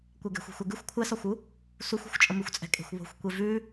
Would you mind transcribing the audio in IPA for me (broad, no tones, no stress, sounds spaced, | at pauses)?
kʷ ɛ ɡ ɛ̤ xʷ e̤ xʷ ɛ ɡ ʉ xʷ kʷʰ ɛ s ɒ xʷ u | s u xʷ ɛ̤ xʷ t͡ʃʼ ə m ʉ xʷ t͡sʼ ɛ̤ kʼ e̤ xʷ β o̤ xʷ kʷ e v ʉ